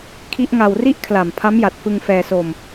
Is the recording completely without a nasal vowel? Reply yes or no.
yes